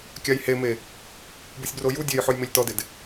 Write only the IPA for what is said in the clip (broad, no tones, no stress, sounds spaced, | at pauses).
kʲ a j h e m e | b u sʲ b r o j u dʲ e j ħ ʊ j m e lʲ t ɔ d ɪ d